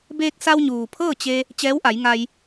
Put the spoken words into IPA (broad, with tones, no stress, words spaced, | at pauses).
beː˧k̚sa˧w ɲuː˩ pʰɤː˥˨t͡ɕe˧ | t͡ɕɛː˧˥wʔa˩˧jŋa˧j